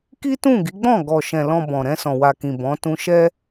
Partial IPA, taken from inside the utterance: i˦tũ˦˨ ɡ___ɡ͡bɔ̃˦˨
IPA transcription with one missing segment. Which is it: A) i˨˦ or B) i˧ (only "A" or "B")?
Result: A